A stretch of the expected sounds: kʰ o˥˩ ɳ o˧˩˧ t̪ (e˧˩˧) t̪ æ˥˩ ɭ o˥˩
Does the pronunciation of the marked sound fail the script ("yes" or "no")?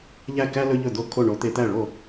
no